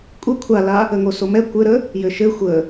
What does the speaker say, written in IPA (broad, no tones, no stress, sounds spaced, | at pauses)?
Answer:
kʷʼ ɘ kʷʰ a l a | ə ŋ o s o m ɛ kʷ ɘ ɾ ə | j ɘ ʃ ɘ xʷ ə